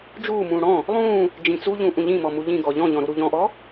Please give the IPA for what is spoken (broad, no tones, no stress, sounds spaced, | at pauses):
d͡ʒ uː m ũː ɽ ɔ̃ | lˠ ũː | d͡ʒ ĩ t͡s u ʎ ũ ʔ ũ ʎ ĩ m ɔ m u ʎ ĩ ɡ ɔ ʎ ɔ̃ ʎ ɔ̃ ɾ u ɾ u ʎ ɔ̃ ʔ ɔ